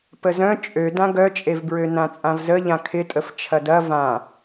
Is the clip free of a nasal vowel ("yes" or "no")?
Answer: no